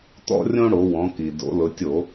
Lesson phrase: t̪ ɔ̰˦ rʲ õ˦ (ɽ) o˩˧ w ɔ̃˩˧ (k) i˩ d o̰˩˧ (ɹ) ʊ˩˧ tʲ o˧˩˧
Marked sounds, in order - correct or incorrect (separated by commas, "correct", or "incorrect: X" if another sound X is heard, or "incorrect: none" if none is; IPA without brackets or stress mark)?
correct, correct, incorrect: l